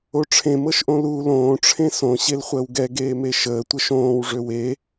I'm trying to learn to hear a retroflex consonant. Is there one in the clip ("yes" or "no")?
yes